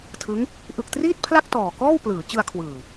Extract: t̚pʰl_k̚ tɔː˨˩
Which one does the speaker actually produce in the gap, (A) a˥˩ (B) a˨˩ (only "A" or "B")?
A